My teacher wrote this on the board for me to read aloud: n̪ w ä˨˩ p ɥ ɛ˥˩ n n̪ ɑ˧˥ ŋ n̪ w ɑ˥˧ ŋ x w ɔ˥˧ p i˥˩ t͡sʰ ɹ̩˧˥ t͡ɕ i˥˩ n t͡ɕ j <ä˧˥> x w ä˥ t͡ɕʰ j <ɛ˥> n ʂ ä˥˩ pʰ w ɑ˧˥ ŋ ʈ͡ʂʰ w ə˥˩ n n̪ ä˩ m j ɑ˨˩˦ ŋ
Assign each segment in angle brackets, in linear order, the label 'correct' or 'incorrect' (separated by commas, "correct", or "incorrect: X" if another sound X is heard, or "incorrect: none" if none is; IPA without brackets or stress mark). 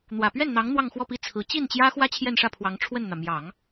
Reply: incorrect: ä˥, incorrect: ɛ˥˧